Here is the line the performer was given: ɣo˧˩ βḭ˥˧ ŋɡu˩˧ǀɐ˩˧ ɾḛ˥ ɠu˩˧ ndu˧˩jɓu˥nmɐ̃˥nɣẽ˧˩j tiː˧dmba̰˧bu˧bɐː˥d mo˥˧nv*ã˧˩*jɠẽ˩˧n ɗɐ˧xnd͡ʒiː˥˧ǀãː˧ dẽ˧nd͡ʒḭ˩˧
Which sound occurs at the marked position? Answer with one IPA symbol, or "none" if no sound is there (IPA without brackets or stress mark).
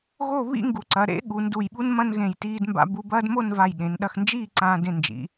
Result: a˧˩